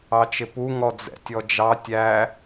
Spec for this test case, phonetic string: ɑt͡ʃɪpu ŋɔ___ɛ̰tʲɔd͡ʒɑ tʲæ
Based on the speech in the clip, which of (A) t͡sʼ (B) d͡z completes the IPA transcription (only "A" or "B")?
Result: B